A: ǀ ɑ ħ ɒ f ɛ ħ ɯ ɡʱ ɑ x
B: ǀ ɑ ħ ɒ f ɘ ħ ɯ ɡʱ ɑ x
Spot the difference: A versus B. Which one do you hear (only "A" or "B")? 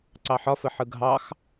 B